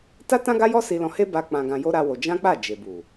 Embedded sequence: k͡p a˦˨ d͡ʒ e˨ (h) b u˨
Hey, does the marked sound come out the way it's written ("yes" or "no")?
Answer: no